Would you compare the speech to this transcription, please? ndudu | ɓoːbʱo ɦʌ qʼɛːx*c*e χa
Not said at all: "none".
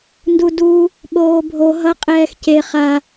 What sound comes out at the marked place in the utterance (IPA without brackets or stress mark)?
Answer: c